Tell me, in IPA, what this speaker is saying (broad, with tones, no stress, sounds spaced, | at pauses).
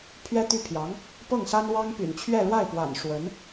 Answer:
pʰ ɥ ɛ˥ t̪ y˥˩ pʰ j ɑ˧˥ ŋ | p ɤ˥˩ ŋ s a˥ n w ɑ˥ ŋ p y̰˨˩ n t͡ɕʰ ɥ ɛ˥˧ ɻ w a˥˩ ɪ̯ p w a̰˨˩ n ʂ w ə˧˥ n